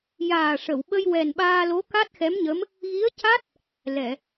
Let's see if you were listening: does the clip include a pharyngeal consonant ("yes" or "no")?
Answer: no